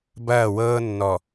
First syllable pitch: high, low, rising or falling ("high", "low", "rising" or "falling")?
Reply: falling